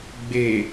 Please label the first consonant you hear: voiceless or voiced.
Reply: voiced